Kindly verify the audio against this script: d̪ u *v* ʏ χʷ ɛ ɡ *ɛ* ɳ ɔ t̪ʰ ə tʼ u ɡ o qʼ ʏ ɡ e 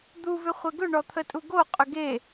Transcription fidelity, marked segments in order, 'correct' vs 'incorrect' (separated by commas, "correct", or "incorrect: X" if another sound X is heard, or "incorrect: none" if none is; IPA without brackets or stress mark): correct, incorrect: ʏ